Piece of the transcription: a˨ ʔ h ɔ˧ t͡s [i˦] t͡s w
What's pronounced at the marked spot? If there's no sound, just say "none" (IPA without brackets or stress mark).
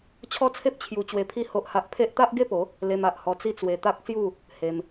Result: i˦